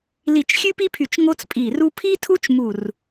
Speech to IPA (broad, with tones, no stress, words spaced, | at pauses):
li˧˩t͡ʃxʲʉ˥pi˥pʰy˧˩t͡ʃ ŋo˥t͡spʼi˧˩ru˥ pʰi˥tʰu˥t͡ʃ mu˧˩r